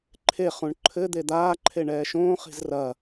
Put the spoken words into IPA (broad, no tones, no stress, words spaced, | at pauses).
ǃʰe χũɳǃʰɘ d̪ed̪aː ǃʰeɳɛːʃõː χi̤zrɐ